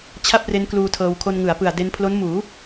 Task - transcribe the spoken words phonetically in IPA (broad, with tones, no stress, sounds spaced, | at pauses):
t͡ɕʰ a˥˩ p̚ r e˦˥ n k l uː˧ tʰ ɤː˧ w kʰ o˧ n ŋ ɯ˩˦ a̯ p ɯ˨˩ a̯ d e˧ n pʰ l o˦˥ n m uː˩˦